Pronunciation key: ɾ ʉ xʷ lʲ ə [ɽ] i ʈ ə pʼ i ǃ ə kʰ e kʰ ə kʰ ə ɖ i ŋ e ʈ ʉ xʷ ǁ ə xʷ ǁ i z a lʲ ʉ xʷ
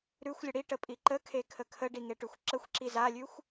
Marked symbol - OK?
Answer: yes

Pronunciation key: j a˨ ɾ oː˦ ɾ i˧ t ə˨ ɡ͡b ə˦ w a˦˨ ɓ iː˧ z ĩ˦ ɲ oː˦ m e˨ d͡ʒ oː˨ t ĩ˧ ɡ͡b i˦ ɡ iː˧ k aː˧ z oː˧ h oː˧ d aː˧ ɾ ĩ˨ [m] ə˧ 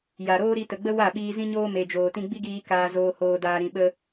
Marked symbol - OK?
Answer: no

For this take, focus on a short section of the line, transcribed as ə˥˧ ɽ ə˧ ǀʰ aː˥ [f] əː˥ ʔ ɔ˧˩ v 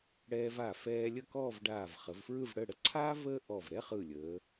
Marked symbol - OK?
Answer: no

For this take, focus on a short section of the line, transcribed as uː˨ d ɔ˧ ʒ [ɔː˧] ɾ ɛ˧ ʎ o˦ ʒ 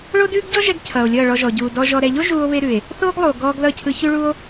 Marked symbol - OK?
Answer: no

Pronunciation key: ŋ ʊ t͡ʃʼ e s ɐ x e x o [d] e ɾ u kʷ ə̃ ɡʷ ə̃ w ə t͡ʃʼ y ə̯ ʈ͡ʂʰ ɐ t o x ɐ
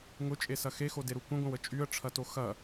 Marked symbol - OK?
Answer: yes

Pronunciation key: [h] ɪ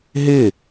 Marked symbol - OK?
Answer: no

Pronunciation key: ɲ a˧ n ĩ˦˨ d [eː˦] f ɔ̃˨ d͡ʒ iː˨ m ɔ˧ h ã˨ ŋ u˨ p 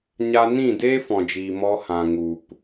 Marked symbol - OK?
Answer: yes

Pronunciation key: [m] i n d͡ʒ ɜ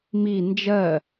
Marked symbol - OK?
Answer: yes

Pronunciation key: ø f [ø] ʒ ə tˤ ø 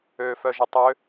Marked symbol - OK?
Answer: no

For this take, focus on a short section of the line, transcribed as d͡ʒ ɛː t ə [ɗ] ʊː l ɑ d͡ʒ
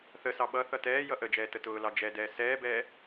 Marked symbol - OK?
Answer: no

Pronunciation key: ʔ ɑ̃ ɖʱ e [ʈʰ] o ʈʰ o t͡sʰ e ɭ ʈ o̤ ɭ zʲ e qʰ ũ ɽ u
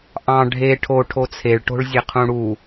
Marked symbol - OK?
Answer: yes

